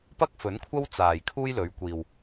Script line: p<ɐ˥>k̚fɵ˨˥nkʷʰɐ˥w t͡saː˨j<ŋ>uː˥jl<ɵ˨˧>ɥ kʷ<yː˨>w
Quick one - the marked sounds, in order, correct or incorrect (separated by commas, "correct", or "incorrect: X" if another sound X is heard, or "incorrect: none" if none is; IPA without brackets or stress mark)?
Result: correct, incorrect: kʰ, correct, incorrect: iː˨